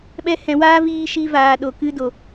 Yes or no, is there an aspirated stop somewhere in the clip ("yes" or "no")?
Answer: no